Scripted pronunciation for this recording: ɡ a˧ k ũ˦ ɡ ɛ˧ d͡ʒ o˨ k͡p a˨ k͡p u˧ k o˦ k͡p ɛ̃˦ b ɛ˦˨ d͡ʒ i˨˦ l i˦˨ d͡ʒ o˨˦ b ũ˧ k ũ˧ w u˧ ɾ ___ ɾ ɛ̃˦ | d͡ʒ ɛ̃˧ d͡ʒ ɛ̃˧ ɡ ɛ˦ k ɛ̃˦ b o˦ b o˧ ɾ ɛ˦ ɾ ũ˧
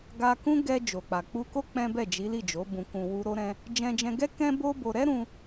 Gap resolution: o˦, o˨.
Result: o˦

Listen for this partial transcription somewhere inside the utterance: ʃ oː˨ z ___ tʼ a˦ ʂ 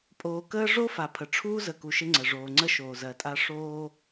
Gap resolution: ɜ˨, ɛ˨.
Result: ɜ˨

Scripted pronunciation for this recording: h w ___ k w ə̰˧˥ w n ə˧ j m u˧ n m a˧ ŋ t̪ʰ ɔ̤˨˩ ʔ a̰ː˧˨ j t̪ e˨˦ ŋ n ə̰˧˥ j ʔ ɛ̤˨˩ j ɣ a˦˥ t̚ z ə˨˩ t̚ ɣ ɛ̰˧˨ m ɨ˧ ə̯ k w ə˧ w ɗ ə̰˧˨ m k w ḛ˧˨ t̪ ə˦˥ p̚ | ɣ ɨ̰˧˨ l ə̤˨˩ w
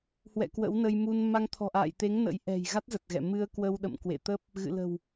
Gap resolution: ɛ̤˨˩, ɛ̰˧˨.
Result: ɛ̰˧˨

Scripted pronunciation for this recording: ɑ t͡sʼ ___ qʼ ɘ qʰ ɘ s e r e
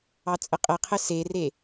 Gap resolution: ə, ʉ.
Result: ə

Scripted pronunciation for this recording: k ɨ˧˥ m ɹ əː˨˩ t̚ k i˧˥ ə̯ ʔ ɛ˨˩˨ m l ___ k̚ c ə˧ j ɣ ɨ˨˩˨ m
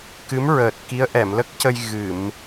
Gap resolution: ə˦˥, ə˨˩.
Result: ə˦˥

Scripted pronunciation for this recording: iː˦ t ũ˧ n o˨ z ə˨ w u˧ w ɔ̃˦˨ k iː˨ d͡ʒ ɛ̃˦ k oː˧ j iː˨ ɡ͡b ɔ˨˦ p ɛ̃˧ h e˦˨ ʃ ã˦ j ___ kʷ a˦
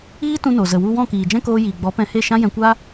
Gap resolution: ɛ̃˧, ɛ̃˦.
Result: ɛ̃˧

